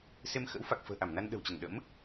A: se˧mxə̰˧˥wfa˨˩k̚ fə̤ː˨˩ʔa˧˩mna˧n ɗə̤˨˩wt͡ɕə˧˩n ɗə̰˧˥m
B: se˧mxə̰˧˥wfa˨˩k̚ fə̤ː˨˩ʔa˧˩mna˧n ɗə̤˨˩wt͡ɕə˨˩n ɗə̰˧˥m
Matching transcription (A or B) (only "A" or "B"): A